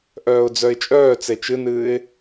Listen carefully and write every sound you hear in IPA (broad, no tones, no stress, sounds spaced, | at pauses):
ʔ œː ʊ̯ d͡z œ ɪ̯ t͡ʃʼ œː t͡s e t͡ʃ ɨ n ɨː ɪ̯